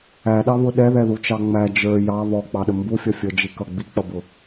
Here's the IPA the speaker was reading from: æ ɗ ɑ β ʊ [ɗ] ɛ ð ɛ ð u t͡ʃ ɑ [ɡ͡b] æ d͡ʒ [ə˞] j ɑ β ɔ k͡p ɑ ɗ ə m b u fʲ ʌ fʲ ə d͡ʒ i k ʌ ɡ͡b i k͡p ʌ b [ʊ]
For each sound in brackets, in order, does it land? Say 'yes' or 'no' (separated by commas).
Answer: yes, no, yes, yes